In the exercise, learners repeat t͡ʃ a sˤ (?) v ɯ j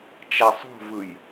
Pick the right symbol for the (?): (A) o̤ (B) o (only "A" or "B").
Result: A